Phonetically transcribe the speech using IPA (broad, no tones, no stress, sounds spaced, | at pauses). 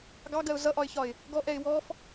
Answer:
ɡ ɑ ɡ ɜ ʊ̯ z ʌ ʔ ɒ ɪ̯ ç ɒ ɪ̯ | ɡ ɔ ʔ ɛ ɪ̯ w ɔ f